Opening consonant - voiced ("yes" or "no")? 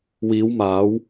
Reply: yes